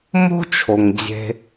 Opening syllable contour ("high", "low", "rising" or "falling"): high